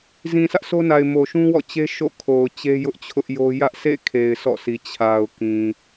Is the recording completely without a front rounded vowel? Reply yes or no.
yes